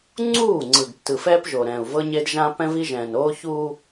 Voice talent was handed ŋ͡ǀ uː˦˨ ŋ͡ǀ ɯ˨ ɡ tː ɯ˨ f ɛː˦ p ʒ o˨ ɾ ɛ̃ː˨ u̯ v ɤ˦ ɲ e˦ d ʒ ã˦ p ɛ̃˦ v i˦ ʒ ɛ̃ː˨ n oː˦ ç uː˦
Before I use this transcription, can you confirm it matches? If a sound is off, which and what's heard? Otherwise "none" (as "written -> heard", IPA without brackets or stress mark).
none